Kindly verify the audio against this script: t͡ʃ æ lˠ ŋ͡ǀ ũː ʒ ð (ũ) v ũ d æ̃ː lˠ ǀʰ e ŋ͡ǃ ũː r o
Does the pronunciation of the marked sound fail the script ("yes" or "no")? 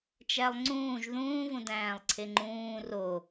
yes